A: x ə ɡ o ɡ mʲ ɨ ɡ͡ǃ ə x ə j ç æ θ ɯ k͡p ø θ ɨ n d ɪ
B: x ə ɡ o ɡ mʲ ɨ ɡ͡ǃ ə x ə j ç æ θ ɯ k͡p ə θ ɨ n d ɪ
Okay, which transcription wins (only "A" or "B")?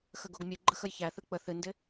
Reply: B